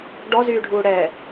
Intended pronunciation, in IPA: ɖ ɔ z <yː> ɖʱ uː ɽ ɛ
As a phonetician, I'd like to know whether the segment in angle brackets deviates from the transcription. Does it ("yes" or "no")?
no